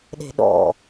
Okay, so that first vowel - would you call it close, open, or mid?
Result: mid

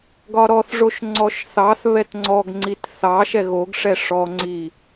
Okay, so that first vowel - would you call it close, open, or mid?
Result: open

